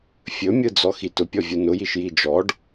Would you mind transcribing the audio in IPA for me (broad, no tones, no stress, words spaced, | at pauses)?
fʲɵmʲɯ d͡zɔxitʊpʲɔ vʲunʊjiʃ jid͡ʒɔɖ